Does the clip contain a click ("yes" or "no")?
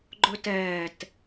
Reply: yes